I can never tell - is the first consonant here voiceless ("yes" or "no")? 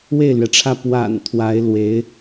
no